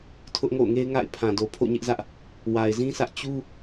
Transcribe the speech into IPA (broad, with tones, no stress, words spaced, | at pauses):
tʰʊ˦ʔŋo̰˦˨ʊ̯ŋe˦ɪ̯ ŋa̰˦˨ɪ̯ pʰã˨do˨ pʰo̰˦˨ɲɪ˦ʔzä˦ʔ | wa˨ɪ̯zĩ˦sä˦ʔ t͡ɕu˦